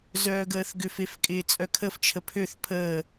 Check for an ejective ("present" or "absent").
present